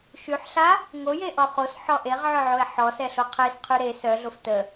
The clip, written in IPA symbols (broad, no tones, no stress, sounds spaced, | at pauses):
ʃ y ħ ɬ a | ŋ o j e ʔ ɔ χ o s ħ ɔ ʔ e ʁ ʕ œ ʕ o e̯ ħ ɔ s ɛ ɬ o qʰ e s qʰ y ɾ e s œ ɮ o f t ə